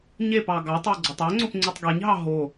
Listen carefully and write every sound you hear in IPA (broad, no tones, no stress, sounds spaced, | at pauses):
ɲ e p ɑ ɡ ɑ tˤ e ɡ͡ǀ o tˤ ø ŋ͡ǀ o p ŋ͡ǀ y tˤ ɡ e ɲ ɦ ɑ ɦ o